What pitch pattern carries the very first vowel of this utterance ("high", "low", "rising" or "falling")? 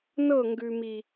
falling